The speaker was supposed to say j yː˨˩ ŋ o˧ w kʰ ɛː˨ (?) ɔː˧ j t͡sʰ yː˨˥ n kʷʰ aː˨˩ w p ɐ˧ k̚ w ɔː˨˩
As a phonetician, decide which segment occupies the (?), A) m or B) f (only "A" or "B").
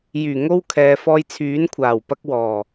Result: B